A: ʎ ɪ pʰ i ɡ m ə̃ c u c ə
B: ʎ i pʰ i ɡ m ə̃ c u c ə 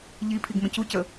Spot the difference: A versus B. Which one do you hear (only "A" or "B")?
B